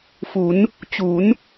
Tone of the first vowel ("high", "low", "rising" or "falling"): rising